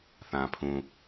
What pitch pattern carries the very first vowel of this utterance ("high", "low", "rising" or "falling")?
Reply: low